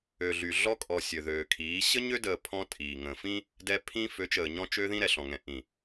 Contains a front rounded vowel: yes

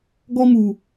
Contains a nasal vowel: no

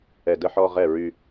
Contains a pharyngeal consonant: yes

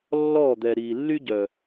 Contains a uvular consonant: no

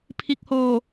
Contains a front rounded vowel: no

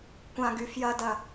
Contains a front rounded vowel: yes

